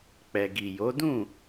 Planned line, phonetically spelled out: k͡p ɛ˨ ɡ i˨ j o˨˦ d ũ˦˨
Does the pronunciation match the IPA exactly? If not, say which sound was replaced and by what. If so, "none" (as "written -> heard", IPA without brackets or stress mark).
none